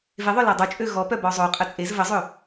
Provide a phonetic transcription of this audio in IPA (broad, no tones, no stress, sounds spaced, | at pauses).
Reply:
v e ðˤ œ l a dˤ u t͡ʃʼ ø ɣ ɔ p œ b ɔ zˤ o qʼ ə t͡sʼ e z v ə zˤ ø